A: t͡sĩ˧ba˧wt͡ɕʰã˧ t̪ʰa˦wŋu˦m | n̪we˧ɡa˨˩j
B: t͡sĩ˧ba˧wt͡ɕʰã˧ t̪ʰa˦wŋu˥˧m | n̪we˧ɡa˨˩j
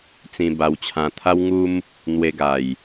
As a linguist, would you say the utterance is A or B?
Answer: A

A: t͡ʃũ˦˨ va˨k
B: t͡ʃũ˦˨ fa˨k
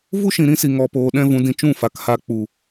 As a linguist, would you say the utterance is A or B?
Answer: B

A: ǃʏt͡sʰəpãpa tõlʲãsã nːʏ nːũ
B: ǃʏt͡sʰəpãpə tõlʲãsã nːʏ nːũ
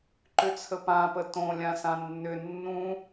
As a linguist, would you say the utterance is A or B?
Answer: B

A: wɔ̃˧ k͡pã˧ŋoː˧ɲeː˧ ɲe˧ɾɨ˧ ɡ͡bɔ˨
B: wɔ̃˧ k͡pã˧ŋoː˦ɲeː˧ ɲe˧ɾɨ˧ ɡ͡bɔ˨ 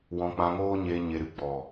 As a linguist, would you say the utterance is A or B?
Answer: B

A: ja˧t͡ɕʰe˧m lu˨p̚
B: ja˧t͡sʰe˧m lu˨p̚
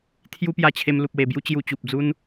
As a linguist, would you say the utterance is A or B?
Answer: A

